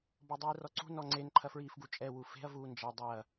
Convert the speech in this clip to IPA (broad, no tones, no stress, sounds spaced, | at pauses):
b ɔ dˤ iː r ɔ ǀ ṳ n ɔ ŋ͡ǀ e n ǃʰ ɐ f ɹ iː f ɡ u t͡ʃʼ ɛ w u f e̤ ɐ̯ v uː n d͡ʒ ɐ dˤ ɐː